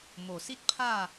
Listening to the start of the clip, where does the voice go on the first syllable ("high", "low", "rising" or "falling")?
low